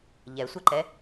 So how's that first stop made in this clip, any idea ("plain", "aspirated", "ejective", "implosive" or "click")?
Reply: click